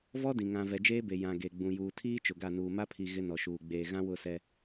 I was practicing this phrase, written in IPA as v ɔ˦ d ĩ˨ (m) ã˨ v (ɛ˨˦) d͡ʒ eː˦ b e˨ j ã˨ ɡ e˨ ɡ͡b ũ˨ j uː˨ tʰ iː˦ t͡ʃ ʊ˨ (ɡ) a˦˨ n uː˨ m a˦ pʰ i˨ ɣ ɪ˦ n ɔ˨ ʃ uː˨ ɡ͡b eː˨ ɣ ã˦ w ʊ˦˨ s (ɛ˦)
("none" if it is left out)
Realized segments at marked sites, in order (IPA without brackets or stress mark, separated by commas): ŋ, ɛ˨, ɡ, ɛ˦